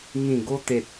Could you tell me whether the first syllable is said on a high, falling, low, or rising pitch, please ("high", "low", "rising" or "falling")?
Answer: low